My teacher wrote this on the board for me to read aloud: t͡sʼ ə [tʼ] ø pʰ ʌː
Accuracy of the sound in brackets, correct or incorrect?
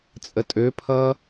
correct